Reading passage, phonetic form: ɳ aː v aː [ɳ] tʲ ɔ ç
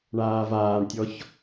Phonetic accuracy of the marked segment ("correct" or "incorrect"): correct